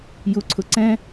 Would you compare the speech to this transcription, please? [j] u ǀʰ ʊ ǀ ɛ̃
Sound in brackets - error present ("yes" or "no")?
no